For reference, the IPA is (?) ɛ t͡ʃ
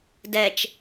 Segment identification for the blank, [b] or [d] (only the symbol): d